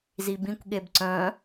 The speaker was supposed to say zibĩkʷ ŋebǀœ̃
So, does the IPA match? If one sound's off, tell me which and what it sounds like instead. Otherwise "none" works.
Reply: ŋ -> ɠ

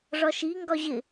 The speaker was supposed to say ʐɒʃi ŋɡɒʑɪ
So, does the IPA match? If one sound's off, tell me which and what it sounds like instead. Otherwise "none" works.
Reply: none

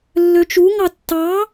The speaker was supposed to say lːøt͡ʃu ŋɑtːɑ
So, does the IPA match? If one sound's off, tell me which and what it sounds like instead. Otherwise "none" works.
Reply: none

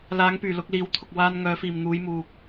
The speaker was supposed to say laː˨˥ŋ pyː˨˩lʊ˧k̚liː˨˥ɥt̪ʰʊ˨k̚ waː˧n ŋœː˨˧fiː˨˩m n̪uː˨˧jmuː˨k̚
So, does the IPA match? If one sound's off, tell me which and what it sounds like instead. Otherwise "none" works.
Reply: ɥ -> w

